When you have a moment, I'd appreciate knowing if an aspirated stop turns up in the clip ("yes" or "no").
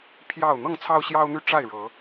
yes